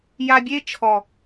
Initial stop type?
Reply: plain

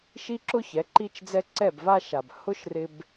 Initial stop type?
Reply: click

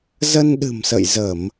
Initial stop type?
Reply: implosive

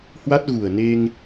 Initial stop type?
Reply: plain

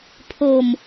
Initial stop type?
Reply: aspirated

